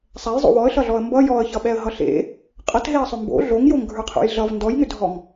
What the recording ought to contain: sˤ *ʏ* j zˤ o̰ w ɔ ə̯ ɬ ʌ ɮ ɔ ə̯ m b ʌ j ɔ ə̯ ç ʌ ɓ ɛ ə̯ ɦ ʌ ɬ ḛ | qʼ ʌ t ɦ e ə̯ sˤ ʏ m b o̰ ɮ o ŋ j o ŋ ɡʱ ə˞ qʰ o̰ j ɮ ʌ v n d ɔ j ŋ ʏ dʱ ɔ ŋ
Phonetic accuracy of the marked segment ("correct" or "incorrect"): incorrect